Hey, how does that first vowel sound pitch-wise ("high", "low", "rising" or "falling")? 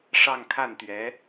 falling